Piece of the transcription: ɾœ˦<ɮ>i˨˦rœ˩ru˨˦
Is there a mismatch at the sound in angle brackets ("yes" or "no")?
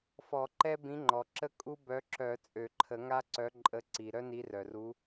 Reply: yes